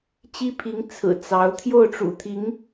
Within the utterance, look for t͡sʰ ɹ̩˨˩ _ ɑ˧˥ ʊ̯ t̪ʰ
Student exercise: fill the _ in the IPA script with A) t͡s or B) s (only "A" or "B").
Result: A